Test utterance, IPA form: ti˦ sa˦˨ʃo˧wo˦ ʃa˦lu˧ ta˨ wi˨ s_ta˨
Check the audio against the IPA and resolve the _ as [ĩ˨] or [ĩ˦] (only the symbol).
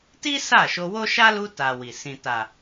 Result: ĩ˨